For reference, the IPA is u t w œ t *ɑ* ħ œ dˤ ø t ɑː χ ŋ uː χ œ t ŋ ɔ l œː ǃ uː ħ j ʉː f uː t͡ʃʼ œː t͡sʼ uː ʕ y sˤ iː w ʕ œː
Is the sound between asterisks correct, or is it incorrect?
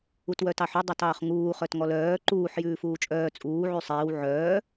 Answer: correct